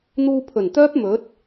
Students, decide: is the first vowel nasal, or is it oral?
oral